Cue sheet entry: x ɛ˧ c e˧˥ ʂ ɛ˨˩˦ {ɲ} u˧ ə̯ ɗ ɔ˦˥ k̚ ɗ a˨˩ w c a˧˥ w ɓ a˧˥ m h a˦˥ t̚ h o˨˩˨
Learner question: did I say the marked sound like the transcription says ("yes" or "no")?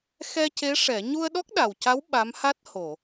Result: yes